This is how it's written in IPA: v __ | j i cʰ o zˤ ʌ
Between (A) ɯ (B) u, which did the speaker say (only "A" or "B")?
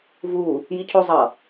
B